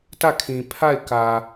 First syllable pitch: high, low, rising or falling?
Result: falling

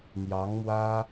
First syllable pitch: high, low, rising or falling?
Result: rising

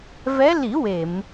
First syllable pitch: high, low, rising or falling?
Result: rising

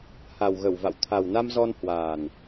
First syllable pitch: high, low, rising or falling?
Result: low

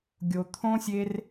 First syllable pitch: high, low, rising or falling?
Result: low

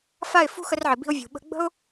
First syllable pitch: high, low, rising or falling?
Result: falling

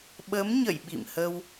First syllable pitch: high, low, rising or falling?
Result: rising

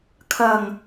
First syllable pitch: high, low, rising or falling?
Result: low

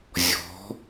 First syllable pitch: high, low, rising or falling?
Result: rising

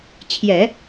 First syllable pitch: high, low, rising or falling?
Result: low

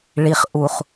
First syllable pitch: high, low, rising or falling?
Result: low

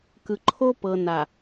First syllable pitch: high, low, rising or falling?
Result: low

